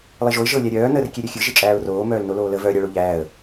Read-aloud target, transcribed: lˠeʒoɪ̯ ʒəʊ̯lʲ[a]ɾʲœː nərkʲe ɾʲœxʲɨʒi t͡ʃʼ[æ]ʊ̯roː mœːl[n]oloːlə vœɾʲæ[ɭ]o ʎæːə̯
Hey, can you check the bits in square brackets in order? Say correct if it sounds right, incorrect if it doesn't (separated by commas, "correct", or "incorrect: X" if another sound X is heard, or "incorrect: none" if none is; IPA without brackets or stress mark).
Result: incorrect: æ, incorrect: æː, correct, correct